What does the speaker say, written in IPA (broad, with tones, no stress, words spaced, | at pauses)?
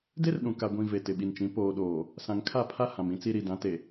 de˦rɗũ˨ ka˨ ɡʷĩ˨ ve˨tɪ˨ɓi˨nt͡ʃĩ˨˦ poː˨ɗoː˨ | sã˨ŋkʰa˦˨pʰa˦ hã˨mĩ˦t͡si˦ ɾi˨dã˨˦te˨